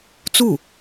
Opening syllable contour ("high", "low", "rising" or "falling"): falling